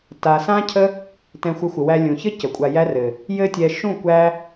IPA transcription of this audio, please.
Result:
t a˨ s ã˦ cʰ ə˦ | t ɛ̃˧ xʷ ɘ˧ xʷ ə˨ w æ˧ lʲ ũ˨ ç ɘ˦ c ə˨ kʷʼ a˧ j æ˦ r ɘ˨ | j ɘ˧ tʲ ɛ˨ ʃ ũ˦˨ kʷ æ˧

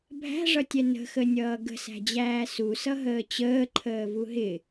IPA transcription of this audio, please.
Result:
bʱ æ̤ ʐ ʌ tʲ ɛ n ə̤ x ə nʲ ʌː ɡ ə̤ s æ̤ d͡ʑ æː s u s ʌ ɦ əː t͡ɕ əː ǃʰ əː v u ɦ ɪ

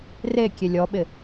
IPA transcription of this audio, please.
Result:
r e kʲ e lʲ ɔ ɓ ɪ

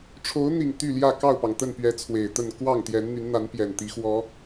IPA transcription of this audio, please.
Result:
ʈ͡ʂʰ o˨˦ ʊ̯ n̪ i˨˩ ŋ t̪ y˥˨ l j ä˥˨ k ɑ˥˨ ʊ̯ p ɑ˩ ŋ t̪ ə˥˨ n p ɥ ɛ˨˦ t͡sʰ w e˨˩ ɪ̯ t̪ ə˥˨ n k w ɑ˥˨ ŋ t̪ j ɛ˨˦ n n̪ y˨˦ n n̪ a˨˦ n p j ɛ˨˩ n t̪ i˨˦ x w ɔ˨˦

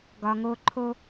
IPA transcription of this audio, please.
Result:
ɡ ɒ˧ ŋ o˦ ǃʰ o˦

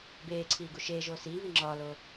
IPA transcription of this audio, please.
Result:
b eː ǀʰ iː ɡ u ʃ eː ʒ oː s iː β i ŋ͡ǁ ɒː l oː

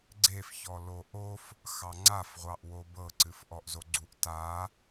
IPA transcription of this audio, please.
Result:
ɡ͡ǀ e f ç ɔ l o ʔ o f | x ɑ ŋ͡ǀ a f ʁʷ ɑ ʔ w o b ɤ ǀ ɨ f ʔ ɔ ʔ z o ɡ͡ǀ u ʔ t a

